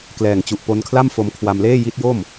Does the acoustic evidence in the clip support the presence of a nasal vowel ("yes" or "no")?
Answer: no